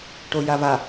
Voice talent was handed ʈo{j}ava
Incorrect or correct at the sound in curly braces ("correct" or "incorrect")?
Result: correct